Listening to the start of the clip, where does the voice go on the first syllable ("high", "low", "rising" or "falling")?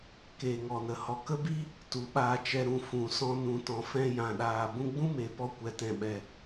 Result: low